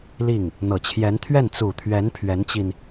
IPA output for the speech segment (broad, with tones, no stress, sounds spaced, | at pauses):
l i˥˩ ŋ | n̪ ɤ˨˩ t͡ɕʰ j ɛ˧˥ n t̪ʰ ɥ ɛ˥˩ n t͡s u˨˩ t̪ʰ ɥ ɛ˧˥ n pʰ ɥ ɛ˧˥ n t͡ɕ i˧ n